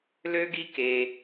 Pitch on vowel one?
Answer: high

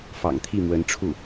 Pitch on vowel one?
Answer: low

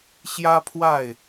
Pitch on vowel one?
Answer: high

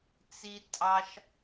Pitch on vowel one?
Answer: high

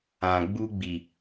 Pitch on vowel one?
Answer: low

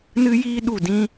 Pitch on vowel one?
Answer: high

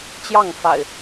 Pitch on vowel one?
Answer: falling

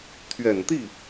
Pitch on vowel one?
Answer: low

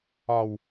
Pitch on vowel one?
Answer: low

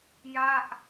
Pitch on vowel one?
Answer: falling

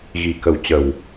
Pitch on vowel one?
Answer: low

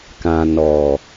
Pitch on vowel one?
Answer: low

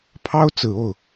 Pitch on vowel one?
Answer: high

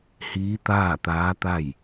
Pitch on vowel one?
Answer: rising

